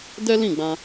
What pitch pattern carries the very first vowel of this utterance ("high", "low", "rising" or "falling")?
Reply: high